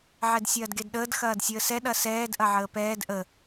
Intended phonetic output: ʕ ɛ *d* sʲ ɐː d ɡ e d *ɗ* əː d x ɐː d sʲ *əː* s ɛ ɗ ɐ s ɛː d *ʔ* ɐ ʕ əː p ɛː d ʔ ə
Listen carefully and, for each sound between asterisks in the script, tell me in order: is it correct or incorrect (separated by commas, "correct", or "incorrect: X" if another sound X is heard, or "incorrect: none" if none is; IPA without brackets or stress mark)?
correct, correct, correct, correct